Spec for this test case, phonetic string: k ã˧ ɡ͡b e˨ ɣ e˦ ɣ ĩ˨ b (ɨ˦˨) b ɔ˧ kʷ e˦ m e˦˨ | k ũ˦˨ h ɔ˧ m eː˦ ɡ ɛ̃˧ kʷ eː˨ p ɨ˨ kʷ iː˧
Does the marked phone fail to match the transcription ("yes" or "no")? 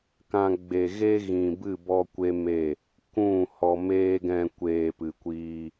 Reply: no